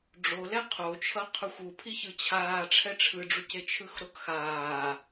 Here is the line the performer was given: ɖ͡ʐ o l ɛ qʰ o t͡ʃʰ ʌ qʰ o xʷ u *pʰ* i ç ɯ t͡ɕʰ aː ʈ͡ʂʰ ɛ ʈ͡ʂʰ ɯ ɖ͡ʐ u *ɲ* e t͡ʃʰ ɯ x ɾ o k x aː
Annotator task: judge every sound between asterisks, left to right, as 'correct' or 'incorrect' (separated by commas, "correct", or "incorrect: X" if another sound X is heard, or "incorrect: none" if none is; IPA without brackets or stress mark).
correct, incorrect: c